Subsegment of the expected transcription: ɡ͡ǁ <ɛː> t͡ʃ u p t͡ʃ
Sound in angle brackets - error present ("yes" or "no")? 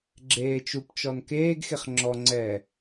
yes